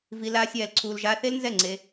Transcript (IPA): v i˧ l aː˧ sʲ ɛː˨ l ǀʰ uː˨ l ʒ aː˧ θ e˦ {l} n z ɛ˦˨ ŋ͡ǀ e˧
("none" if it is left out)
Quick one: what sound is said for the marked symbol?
l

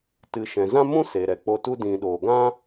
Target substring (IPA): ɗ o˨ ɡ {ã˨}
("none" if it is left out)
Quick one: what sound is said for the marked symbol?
ã˦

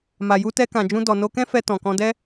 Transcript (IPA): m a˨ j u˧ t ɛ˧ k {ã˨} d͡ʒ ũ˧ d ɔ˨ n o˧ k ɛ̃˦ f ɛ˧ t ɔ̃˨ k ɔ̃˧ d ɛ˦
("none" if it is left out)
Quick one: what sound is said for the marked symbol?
ã˨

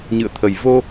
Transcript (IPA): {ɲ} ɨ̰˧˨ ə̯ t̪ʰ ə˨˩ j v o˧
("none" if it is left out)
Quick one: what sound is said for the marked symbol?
ɲ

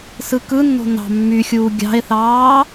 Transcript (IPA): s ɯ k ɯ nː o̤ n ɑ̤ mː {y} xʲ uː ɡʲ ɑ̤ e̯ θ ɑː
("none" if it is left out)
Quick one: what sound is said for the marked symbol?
y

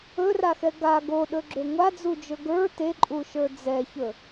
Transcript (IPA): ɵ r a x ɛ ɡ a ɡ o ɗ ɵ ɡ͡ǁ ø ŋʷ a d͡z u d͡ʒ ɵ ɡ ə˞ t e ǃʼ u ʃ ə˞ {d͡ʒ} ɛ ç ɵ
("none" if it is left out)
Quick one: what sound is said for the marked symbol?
d͡z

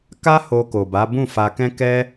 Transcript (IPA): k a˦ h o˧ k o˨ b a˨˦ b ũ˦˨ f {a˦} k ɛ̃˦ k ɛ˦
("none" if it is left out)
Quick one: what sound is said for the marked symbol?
a˧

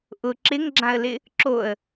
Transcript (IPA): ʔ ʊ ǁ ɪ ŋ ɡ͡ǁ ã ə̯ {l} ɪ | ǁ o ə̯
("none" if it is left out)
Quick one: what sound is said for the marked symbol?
l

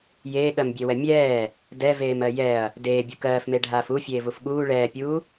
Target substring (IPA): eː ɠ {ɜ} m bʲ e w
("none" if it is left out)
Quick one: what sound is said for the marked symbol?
ɜ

